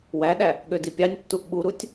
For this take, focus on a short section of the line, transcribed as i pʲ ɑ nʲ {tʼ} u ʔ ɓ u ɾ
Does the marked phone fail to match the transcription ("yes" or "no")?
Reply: yes